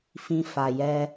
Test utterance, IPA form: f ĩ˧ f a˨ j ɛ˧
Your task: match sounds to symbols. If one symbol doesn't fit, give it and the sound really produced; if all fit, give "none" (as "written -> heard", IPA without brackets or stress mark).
none